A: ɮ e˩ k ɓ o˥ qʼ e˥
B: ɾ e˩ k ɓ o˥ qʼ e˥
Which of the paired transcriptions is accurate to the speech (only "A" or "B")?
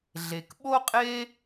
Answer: A